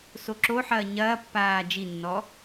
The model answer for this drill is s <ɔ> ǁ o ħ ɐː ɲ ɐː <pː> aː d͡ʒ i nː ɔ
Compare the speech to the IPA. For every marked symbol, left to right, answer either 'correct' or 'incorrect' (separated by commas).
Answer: incorrect, correct